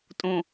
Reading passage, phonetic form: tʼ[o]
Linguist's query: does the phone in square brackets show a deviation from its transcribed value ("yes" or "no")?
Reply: yes